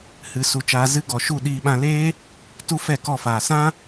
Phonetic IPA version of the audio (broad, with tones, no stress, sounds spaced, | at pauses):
h ɨ˨ s u˧ t͡ʃ aː˧ z ɨ˧ ɡ ɔ˨ ʃ u˦˨ ɗ iː˧ ɓ ã˧ l eː˦ | t u˦ f ɛ˦˨ k ɔ˦˨ f aː˨ s ã˦